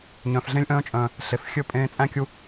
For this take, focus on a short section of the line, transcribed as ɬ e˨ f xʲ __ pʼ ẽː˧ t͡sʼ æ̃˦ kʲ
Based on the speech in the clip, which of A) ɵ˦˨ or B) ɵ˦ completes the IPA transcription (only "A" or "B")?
A